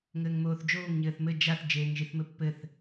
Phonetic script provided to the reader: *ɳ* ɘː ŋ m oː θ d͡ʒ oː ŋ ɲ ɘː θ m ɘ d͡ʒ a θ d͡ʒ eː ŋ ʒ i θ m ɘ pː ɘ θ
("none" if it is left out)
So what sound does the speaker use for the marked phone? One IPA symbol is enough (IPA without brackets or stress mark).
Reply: ŋ